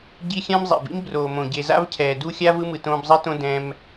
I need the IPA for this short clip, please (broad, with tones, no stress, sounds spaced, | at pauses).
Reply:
ɟ i˦ xʲ ã˥ m zˤ ḛ˩ b ḭ˥ m b r oː˩ m õ˩ ɟ e˨ z a̰˦ v cʰ ɛː˩ d u˦ xʲ a˥ v ɯ˦ m ɯ˨ t õː˦ b zˤ i˥ t õ˥ d ɛ̃˦ m